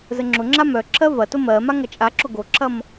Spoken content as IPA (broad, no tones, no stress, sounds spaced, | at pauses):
z ə ŋ͡ǁ ʊ ŋ͡ǁ a m œ ǁʰ ɜ v ɐ t ʊ m ɜ m a ŋ ɐ t͡ʃʼ a ǁ ʊ ɡ o ǁʰ ɐ m